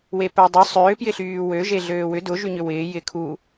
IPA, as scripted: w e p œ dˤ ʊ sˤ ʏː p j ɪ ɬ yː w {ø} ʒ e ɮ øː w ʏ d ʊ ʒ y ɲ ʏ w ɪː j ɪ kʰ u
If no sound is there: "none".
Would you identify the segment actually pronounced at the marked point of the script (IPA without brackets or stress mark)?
ø